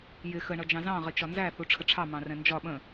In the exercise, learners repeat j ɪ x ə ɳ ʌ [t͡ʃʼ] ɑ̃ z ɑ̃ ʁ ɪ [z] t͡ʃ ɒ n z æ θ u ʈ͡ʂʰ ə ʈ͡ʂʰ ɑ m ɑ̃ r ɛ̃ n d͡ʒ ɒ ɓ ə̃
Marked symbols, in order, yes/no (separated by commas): no, no